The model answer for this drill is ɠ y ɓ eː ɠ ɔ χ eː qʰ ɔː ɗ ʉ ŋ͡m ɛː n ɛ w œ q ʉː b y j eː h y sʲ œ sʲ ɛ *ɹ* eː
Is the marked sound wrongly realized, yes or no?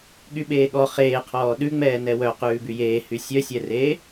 yes